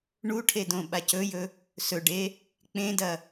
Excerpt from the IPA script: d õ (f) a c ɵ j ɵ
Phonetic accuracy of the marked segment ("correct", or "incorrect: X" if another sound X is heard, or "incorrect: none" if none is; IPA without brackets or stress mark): incorrect: ɓ